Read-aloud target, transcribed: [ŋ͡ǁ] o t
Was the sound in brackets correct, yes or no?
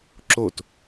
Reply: no